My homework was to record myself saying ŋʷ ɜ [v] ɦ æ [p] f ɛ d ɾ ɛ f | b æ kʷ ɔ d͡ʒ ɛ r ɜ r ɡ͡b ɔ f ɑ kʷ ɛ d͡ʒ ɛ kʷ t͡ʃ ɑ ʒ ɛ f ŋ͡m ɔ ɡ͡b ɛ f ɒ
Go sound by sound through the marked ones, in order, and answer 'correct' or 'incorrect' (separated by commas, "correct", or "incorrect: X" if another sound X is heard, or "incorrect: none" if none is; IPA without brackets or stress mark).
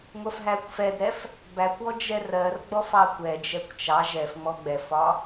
incorrect: f, incorrect: kʷ